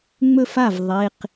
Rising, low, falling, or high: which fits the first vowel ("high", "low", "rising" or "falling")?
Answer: falling